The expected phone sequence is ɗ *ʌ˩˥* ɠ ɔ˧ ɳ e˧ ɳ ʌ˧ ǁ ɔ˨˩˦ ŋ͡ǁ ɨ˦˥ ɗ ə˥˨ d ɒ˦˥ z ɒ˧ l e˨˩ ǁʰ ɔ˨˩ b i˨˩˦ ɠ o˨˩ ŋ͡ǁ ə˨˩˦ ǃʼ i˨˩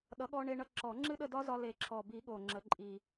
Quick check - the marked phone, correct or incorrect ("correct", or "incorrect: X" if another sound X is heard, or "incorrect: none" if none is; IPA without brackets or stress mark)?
correct